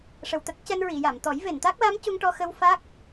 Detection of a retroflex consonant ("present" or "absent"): present